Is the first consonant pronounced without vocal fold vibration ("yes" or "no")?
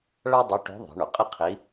no